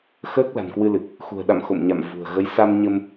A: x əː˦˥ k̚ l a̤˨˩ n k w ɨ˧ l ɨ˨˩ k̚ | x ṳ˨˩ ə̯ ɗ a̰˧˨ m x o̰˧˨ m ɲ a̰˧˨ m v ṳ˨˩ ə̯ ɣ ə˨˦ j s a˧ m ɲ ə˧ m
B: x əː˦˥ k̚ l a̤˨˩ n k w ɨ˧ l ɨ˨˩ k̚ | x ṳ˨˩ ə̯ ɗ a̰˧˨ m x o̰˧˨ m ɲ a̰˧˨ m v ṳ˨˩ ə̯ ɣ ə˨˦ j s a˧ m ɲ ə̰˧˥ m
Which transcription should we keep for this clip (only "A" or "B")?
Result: A